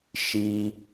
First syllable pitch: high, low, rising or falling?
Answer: low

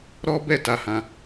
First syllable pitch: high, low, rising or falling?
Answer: high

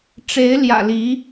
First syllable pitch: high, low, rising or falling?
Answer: rising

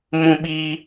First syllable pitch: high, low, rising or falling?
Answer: high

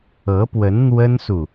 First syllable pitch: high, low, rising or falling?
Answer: rising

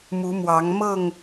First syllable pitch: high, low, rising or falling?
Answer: rising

